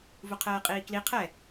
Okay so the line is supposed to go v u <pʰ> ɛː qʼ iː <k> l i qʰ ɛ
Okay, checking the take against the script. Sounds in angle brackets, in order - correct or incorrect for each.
incorrect: qʰ, correct

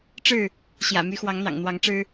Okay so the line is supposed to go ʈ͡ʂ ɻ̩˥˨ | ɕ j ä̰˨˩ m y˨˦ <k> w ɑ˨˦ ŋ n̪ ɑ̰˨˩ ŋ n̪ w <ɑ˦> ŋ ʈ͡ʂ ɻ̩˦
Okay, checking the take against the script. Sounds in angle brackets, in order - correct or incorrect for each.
incorrect: x, incorrect: ɑ˨˦

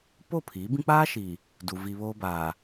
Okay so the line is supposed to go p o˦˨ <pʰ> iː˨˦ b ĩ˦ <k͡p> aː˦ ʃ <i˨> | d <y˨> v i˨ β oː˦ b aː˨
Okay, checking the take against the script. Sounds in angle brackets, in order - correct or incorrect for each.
correct, correct, correct, incorrect: u˨

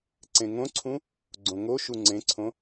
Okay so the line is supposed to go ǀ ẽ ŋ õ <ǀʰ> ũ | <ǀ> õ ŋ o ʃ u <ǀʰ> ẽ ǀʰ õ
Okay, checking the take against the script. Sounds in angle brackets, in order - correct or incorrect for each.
correct, incorrect: ɡ͡ǀ, incorrect: ŋ͡ǀ

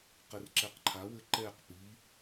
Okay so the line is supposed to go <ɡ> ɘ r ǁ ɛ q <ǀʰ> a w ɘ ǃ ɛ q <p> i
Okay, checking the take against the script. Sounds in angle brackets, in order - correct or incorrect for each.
incorrect: q, incorrect: ǃʰ, correct

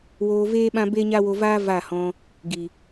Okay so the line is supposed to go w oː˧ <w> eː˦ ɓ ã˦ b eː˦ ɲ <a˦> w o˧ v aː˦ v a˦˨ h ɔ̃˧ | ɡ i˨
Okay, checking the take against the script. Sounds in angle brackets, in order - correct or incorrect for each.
incorrect: v, correct

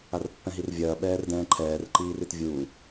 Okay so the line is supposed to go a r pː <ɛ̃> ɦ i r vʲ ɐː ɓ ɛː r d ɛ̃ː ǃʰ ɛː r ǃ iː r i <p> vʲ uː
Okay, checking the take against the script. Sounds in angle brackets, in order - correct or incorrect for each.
correct, incorrect: t

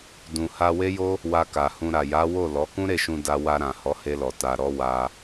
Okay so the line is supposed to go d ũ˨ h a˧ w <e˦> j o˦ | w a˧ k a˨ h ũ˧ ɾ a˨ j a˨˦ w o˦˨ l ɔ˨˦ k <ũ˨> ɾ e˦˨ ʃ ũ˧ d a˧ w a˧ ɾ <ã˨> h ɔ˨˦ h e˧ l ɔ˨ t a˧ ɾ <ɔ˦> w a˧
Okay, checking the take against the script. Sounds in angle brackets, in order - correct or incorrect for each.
correct, incorrect: ũ˦, correct, correct

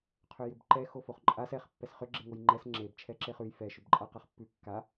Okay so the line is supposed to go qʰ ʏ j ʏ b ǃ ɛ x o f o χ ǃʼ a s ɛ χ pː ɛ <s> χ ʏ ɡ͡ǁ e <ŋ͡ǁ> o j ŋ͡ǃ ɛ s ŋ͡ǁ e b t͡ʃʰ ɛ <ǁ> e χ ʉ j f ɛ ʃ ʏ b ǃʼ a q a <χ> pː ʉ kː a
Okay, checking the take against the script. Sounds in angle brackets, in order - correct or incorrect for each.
correct, incorrect: ŋ, correct, correct

